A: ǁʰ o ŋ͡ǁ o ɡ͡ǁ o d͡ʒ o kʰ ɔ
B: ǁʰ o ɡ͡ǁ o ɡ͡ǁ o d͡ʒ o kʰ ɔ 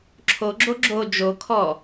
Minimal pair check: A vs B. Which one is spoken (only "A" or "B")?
B